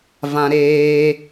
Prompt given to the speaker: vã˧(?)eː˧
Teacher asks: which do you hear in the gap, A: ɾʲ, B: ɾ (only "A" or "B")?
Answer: B